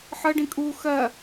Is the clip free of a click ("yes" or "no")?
yes